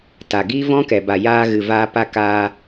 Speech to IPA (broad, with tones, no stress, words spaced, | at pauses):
ta˨ɡiː˦vɔ̃˦ kɛ˨ba˨ jaː˧ɣɨ˨ vaː˧ pa˧kaː˧